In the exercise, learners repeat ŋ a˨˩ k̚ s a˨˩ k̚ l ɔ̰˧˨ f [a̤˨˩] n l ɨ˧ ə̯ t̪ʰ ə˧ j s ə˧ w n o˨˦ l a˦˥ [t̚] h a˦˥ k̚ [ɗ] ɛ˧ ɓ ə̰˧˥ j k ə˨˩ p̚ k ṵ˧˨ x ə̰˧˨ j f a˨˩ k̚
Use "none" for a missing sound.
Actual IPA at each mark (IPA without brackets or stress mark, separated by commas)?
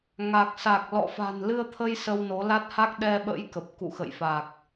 a̤˨˩, t̚, ɗ